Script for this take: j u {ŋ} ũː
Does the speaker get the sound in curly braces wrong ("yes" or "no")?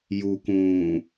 yes